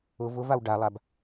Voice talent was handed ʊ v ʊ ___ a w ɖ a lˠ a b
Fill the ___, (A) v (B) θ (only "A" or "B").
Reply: A